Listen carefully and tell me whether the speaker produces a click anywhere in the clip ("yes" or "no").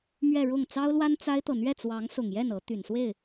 no